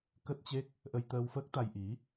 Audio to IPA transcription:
k ə˦˥ t̚ t͡ɕ e˦˥ k̚ | ʔ ə˧ j t̪ əː˧ w f əː˦˥ k̚ t̪ a˧ j ʔ i˨˦

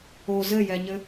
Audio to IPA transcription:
o z ɘ j ɛ ɲ ɘ

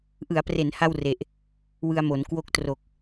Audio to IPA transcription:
ʔ ɯ˩˦ a̯ p r e˩˦ n h a˥˩ w r e˨˩ ʔ | w ɯ˧ a̯ m o˩˦ n k w o˦˥ k̚ t r o˨˩ k̚

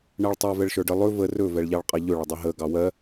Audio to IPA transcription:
ɳ ɜ ɭ tˤ ɛ v ɛ ɭ ʃ ə˞ ɖ ə lˠ ɵ v ə r ɵ v ɛ ɭ ʎ ɑ ɭ qʼ ɑ ʎ ɵ ɭ ə dˤ ɵ ɦ ə ɡ ɑ w ɜ

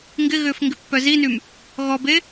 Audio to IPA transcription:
ŋ ɡ ɪ ɣ ʏː f ŋ ɡ ɪ pː œ z i n y m | ɣ ɔ b e

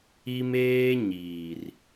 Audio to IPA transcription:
i˦ m eː˦ ɲ iː˨ r

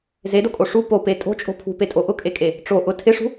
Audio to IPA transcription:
z e d o kʼ o ʂ u p o p e tʼ o̤ t͡ʃʼ o̤ pʰ ṳ p e tʼ o ʔ ʊ kʼ e kʼ e | ʈ͡ʂ o ʔ ʊ tʰ ɪ ʂ ṳ

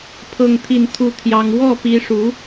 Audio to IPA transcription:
pʰ ɤ˥˧ ŋ t̪ʰ i˥˧ n t̪ʰ u˥˩ t̪ʰ j ɑ˥ ŋ w ɔ˥˩ p i˧˥ ʂ u˧˥

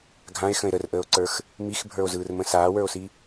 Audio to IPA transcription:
ɡʱ ã e̯ x ə̃ e̯ ɾ ə r ʔ əː o̯ ǀ ə˞ x | m i x bʱ ə˞ o̯ z ɯː r m ə̃ s aː w ə˞ o̯ s i

